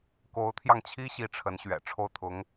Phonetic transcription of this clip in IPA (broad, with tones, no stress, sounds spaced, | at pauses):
k o˧˥ ʊ̯ t̪ʰ j ɑ˧ ŋ t͡ɕʰ i˥ ɕ i˥ ʈ͡ʂʰ ə˧˥ n ɕ ɥ ɛ̰˨˩ ʈ͡ʂʰ o˥˩ ʊ̯ t̪ʰ ʊ˧˥ ŋ